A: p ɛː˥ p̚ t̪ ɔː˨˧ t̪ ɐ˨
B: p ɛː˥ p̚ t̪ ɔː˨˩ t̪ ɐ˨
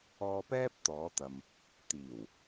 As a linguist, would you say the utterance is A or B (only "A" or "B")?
A